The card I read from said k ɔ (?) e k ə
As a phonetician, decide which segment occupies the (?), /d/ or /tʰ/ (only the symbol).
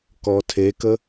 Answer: tʰ